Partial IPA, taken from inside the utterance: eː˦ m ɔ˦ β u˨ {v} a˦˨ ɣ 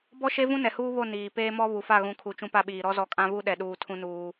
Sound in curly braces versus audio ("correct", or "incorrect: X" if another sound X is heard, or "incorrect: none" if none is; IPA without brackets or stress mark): incorrect: f